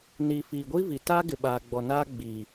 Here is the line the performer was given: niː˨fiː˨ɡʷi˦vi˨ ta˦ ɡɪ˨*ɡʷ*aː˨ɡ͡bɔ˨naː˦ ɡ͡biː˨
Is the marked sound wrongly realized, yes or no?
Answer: yes